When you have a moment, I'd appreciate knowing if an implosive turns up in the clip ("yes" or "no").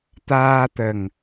no